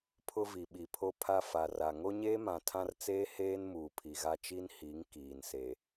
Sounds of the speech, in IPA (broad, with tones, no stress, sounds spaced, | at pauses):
pʰ ʊ˦ v i˨ ɓ i˨ pʰ o˦ pʰ a˦ f a˨ r a˨ ŋ o˦ ɲ eː˦ m ã˨ tʰ ã˦ r t͡s eː˦ h eː˦ n m uː˨ pʰ i˨ ɣ a˦ t͡ʃ i˦ n h i˨˦ ŋ k iː˨ n s e˨